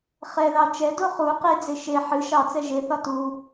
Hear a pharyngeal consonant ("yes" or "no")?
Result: yes